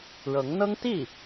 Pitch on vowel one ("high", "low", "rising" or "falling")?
rising